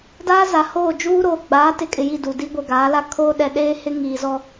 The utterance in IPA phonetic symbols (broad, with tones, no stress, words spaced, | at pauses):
daː˦za˨hoː˦˨ d͡ʒuː˦ɾoː˨ ɡ͡baː˨˦tɪ˨kʼɪ˨ ji˦˨du˨di˦ ɡʷɛ˨ɡaː˨˦la˦ kʰoː˦ɗɛ˨ ɗeː˦hɪ˦ ŋiː˨zɔ˦